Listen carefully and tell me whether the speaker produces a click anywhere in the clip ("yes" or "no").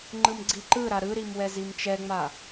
yes